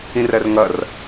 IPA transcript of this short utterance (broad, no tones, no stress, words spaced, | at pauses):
ĩrɜrŋʌr